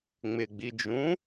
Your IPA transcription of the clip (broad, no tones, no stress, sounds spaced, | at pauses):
ŋ͡m ɪ ɡ͡b i d͡ʒ ũ